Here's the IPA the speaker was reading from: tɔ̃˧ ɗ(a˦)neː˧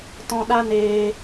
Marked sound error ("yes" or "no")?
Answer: no